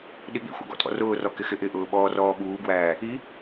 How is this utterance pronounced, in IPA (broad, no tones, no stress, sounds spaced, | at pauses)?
ɗ i ɠ ḭ xʷ ɑ̰ ɡ ɔ̰ tʼ ɔ̰ r ʊː r ɔ k ɪ x ɪ ʔ ɪ ʔ ʊː ɓ ɔː r ɔː ɓ uː ɡ w æː | i